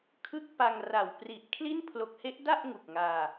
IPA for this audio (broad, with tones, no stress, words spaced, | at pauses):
kʰɯ˥˩k̚pa˧ŋra˨˩w pri˨˩ʔkʰli˥˩n pʰlo˨˩k̚he˦˥ʔda˥˩ʔ ŋu˨˩k̚ŋaː˧